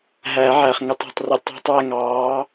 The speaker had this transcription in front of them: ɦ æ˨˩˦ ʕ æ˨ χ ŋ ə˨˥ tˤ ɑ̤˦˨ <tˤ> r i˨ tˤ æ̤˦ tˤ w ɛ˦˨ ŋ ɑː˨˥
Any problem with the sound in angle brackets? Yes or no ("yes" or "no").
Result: no